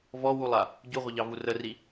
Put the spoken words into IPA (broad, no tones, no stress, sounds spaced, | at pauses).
v ɔ w u lˠ a | ɟ u ʁʷ ə ʎ ɑ v u r ə r i